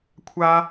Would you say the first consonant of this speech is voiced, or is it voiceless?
voiceless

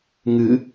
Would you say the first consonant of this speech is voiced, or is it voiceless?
voiced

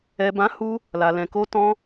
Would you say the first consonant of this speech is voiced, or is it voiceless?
voiced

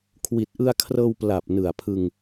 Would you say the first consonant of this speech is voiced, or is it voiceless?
voiceless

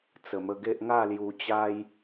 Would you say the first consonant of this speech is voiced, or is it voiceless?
voiceless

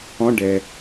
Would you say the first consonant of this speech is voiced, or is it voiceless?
voiced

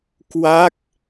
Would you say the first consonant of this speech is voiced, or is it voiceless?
voiceless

